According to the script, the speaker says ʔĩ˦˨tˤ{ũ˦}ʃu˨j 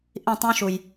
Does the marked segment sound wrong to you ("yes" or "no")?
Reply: no